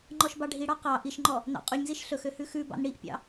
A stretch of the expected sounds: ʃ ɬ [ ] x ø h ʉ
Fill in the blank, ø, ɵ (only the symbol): ɵ